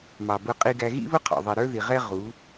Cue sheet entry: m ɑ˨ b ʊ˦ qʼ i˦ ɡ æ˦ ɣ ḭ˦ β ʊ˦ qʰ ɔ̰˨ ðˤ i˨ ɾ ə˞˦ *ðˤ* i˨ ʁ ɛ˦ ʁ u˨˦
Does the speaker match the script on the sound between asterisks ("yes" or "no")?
no